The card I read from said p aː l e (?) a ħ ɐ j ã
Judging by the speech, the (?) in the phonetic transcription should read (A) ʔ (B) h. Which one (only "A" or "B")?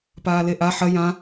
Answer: A